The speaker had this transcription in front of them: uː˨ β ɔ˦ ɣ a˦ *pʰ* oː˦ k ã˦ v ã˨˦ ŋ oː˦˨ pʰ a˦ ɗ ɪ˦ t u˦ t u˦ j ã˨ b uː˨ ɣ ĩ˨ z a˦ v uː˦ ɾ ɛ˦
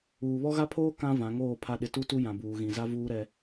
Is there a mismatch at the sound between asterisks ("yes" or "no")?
no